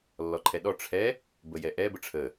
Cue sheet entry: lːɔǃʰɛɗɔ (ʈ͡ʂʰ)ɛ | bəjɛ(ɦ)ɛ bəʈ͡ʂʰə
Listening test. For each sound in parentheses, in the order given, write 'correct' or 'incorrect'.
correct, incorrect: ʔ

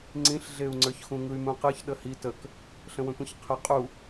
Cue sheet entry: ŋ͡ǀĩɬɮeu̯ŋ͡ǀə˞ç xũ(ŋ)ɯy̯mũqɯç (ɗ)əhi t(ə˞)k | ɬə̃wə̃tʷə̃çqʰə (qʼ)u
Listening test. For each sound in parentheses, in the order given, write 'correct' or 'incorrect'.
correct, correct, incorrect: ə, correct

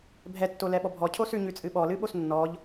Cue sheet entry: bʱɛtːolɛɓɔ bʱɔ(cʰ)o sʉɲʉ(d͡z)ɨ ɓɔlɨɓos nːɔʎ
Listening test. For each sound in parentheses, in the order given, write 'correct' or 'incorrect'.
correct, incorrect: t͡sʼ

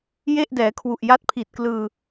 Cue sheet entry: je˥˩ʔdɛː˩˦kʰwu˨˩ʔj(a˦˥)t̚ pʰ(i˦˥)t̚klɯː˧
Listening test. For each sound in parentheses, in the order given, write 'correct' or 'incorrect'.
correct, incorrect: i˨˩

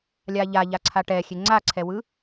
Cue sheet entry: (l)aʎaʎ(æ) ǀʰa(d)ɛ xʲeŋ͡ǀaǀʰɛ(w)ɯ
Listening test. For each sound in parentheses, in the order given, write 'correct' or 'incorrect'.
incorrect: lʲ, incorrect: a, incorrect: ʈ, correct

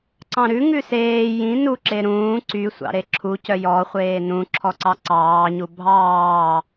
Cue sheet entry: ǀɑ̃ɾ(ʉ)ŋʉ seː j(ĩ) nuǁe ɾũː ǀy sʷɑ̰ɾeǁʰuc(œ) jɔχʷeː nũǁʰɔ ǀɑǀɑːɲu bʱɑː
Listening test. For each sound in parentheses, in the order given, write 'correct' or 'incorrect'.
correct, correct, correct

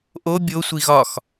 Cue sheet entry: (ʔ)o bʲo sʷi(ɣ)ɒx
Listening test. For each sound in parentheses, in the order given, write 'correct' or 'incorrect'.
correct, correct

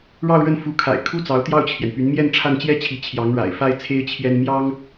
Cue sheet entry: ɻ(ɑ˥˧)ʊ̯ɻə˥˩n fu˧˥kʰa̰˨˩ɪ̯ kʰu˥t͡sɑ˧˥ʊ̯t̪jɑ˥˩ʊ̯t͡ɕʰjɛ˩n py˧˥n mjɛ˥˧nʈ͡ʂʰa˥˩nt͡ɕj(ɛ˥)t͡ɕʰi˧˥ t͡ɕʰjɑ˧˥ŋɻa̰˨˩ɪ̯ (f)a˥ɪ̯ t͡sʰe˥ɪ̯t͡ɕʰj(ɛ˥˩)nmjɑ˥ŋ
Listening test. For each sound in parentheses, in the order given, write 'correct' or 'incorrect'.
correct, correct, correct, incorrect: ɛ˥

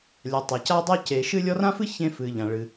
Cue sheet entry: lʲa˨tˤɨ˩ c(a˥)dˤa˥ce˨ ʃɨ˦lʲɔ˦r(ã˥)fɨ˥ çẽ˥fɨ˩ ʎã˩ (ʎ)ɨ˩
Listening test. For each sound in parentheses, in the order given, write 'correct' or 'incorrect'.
correct, correct, incorrect: ɭ

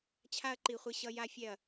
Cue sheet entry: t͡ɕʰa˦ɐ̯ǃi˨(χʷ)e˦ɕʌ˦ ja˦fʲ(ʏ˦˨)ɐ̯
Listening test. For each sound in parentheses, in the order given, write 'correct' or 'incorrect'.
correct, incorrect: ɛ˦˨

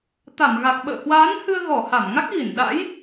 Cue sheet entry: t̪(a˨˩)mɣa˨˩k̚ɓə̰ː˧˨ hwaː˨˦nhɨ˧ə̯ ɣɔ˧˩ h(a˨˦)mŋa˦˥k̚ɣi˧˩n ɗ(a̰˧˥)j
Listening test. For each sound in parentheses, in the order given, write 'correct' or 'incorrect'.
incorrect: a˧˩, incorrect: a˧˩, correct

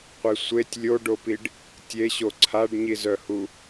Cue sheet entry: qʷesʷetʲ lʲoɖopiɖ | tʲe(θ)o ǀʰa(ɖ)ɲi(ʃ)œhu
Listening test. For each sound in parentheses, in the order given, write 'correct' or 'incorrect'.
incorrect: ɕ, correct, incorrect: z

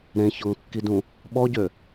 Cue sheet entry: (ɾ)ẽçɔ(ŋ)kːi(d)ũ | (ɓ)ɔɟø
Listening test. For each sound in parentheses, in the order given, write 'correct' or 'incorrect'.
correct, correct, correct, correct

